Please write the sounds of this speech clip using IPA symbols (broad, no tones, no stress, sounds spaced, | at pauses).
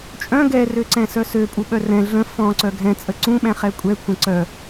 t͡ʃʼ œ̃ ɡ ɛ r ø ǀ ɛ̃ s œ s ø pʼ u ɓ œ r ɛ̃ ɮ ə̃ f ɔ̃ ǀ œ ɡʱ ɛ̃ t͡sʼ ə ǀ ũ ɓ ɛ̃ χ ɛ kʷʼ ɛ kʷʰ ɛ̃ ǀ œ